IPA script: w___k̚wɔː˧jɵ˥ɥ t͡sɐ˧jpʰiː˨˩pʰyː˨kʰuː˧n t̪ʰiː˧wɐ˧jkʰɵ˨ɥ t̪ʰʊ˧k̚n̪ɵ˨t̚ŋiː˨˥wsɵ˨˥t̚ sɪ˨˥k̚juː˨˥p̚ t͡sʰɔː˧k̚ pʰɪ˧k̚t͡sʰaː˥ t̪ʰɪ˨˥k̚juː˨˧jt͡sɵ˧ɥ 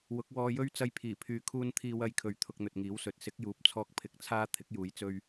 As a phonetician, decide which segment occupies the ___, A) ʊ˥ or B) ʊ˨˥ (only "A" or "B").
B